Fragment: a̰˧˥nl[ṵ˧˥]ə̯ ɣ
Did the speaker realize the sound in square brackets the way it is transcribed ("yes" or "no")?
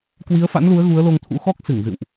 no